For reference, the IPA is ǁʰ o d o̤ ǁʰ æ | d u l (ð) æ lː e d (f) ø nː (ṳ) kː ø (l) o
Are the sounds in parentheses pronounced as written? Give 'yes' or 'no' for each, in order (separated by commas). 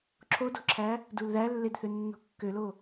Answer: yes, no, no, yes